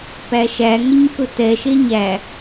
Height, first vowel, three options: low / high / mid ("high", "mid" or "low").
low